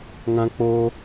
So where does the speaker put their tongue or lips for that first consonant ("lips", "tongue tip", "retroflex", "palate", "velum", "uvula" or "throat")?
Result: velum